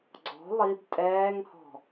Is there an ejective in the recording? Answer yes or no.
yes